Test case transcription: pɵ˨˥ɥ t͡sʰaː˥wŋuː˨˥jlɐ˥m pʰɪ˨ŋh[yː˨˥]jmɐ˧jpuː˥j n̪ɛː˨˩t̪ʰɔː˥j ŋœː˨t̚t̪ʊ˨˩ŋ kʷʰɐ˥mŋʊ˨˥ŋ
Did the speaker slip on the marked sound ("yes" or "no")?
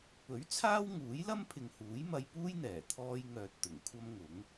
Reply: yes